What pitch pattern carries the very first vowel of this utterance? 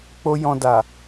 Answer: high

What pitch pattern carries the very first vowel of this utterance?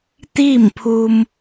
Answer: falling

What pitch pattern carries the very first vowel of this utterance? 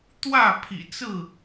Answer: falling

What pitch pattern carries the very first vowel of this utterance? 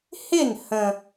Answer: falling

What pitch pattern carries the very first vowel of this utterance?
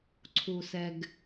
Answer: low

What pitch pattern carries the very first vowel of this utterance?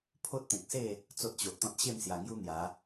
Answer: high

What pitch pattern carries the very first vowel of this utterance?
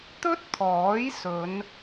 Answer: high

